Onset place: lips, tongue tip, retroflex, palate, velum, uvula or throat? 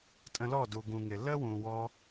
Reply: tongue tip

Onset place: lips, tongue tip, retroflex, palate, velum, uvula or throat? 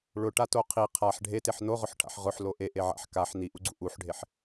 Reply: retroflex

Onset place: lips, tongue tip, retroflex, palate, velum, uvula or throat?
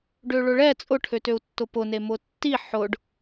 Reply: retroflex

